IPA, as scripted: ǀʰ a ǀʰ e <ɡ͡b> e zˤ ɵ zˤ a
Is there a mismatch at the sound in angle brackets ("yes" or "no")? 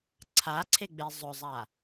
no